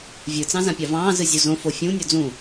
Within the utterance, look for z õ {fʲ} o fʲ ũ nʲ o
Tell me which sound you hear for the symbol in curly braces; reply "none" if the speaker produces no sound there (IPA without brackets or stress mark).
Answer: f